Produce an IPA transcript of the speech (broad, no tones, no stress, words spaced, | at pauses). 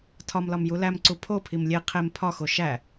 tʰɒmlɒm julæmǀu pʰopʰim lʲe qʰem pʰɒxo ʃæ